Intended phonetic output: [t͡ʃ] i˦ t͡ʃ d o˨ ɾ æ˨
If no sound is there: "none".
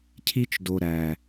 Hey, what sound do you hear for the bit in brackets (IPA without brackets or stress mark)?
cʰ